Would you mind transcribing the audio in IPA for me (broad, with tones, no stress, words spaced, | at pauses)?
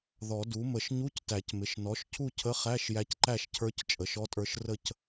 ðɔ˨˩˦du˩˥mə˨˩˦ʃ ɲu˧˥˧ctæ˨˩˦cmɪ˩˧˩ʃ nɔ˩˥ʃcʰu˥˨ cʰə˧˥˧χæ˧˥˧ʃ jæ˧˥cǃæ˥˨ʃcʰə˞˧˥c t͡ʃʼə˩˥ʃɔ˧˥˧tʼə˞˧˥ʃ rə˥˨c